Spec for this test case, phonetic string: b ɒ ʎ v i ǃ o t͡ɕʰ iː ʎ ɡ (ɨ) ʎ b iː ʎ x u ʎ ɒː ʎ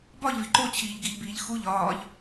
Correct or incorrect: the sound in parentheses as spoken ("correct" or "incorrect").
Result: incorrect